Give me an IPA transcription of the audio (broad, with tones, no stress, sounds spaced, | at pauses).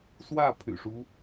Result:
s w ä˥˨ pʰ y̰˨˩ ʂ u˦